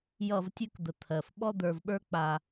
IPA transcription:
jʌ˥˧vtʲʉ˥kd̪ə˧ t̪ʰɜ˧f ɓɔ˥d̪ə˞˧vɓə˞˥ k͡pa˧

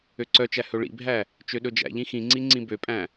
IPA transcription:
øǀœt͡ʃæ hɵɭḭbʱæ | t͡ʃøɗɵd͡ʒæ̰ʎĩ xĩŋ͡ǀi ŋ͡ǀĩbøpʼæ̃

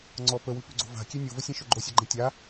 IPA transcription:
ŋ͡ǀɔ pəwʉpʉɡ͡ǀo̤ va̤kʲe nʲovəsʲẽʃɵ ɡ͡ǃosʲɔɡ͡ǃẽ tʲa

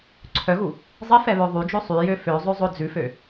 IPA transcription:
ǀʰœɣu | zˤif ɛβœðˤyd͡ʒø sˤyjø føzˤø zˤɵd͡zʉfø

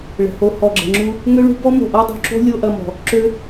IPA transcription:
ɭə̤˨ho˧ hɔ˨ɡ͡ǁə̤˨ŋ͡ǁu˧ | ŋø˦ɭṳ˦bɔ˦ mo̤˨ʔɔ˦dˤo̤˧ǁo̤˦ lʲo˦ʔɐ˧mɔ̤˨ | ǁø˦

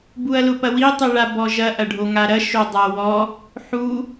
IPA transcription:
buɐ̯lʊpɐwi tˤuɭabɔʒɐ ʔɐɖʱoŋaɾɐ ʃodˤawɔ | ħu

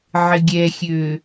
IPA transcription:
ʕɪɡʲɛxʲø

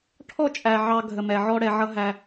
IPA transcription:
ʈʰɔ˥t͡ʃʼæ˩ ʕɑ˧ ɡʱə˩mɛ˩ʕɔ˧ ɽɛ˩ʕʌ˧ ɦæ˩

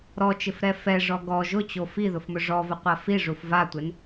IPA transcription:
ɾɔt͡ʃɪfɾɛ fɛʐɔ ɡɔ ʒʊt͡ɕo fiðʊfmʊ ʐɔvʊqʷa fiʐuf vatʷen

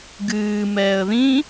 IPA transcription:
ɡɨː mɛːə̯ðĩ

